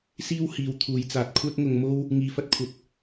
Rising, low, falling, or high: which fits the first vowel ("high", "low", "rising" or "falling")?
high